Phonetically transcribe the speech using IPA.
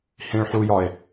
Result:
h ĩ ɭ ħ u j ɒ e̯

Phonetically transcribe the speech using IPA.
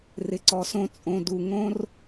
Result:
r ɪ˩ ǀ ɔ˩ s õ˧ t͡sʼ õ˩ d u˩ ŋ õ˧ r

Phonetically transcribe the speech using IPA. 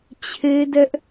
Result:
t͡ɕʰ e˦ d ɛ˦ ʔ

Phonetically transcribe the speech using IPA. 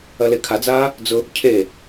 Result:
ɐ l e kʰ a d͡z aː | d͡z ʊ | cʰ e

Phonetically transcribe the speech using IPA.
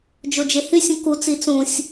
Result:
d͡ʒ o d͡ʒ e h y sʲ ũ k u t͡s i t͡s ũ sʲ

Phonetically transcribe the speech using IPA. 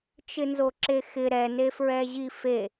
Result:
t͡ʃ ɪ n z o ǁ e x ɪ ɾ ɛ n e f ɹ ɛ ʑ i f e

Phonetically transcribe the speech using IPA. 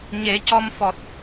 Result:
ɲ e˨˩˦ c ɔ˧ m f ɔ˨˩ t̚

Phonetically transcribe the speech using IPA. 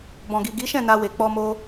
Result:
b ɔ̃˨ ɡ i˨ ɡ i˨˦ ʃ ɛ̃˦˨ n a˧ w e˨ k͡p ɔ˧ m o˧

